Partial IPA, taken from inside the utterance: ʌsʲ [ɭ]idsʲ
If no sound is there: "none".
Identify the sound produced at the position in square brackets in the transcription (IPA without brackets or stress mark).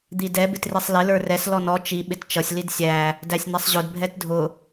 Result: l